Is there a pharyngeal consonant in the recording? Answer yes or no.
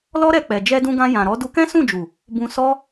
no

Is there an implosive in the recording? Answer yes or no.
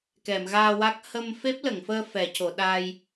yes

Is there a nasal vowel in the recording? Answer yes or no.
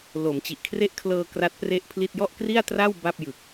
no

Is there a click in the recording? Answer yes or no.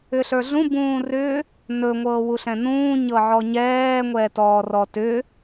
no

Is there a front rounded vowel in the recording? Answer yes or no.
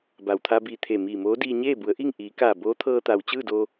no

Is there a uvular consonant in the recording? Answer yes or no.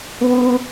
no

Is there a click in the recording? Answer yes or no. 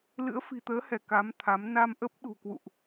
no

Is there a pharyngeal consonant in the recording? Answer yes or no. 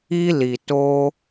no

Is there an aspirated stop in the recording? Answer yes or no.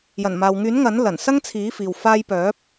yes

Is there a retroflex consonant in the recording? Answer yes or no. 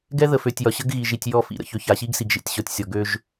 no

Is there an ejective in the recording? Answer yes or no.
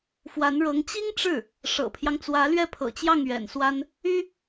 no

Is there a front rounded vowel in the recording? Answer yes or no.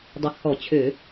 yes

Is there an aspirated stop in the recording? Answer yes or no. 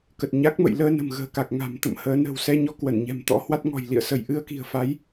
no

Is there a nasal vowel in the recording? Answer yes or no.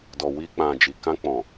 yes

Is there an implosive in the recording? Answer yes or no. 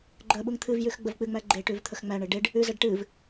yes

